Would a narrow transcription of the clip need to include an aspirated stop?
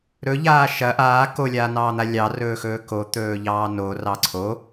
yes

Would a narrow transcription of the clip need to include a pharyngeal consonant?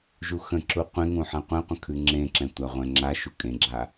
yes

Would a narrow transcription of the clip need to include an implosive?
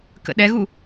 yes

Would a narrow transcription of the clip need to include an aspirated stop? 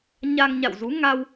no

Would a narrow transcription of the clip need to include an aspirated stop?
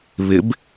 no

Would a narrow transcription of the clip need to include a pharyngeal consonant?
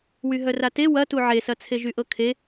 yes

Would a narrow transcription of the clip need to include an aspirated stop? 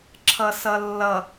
yes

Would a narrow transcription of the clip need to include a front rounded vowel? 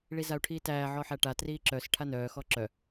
yes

